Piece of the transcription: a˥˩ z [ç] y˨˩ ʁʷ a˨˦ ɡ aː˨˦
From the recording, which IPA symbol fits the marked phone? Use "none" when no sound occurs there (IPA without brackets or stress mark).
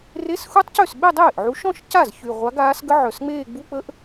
ç